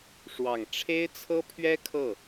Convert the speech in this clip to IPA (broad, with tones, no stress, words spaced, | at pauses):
ʂwɑ˨˩ŋ ʈ͡ʂʰe˥ɪ̯t͡sʰɤ˥pʰɥɛ˥ kʰɤ˥˩